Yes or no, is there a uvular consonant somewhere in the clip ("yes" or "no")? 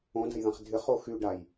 yes